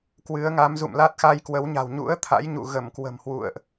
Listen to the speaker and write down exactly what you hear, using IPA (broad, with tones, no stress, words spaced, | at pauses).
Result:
kwɨ˨˦ə̯ŋa˨˦m zṵ˧˨mla˦˥t̚xa˧j kwə˨˦wɲa̤˨˩w ɲṵ˧˥ə̯ t̪ʰa̰˧˥jɲṵ˧˨ ɣə˧˩mkwə̤˨˩mhwṵ˧˨ə̯ʔ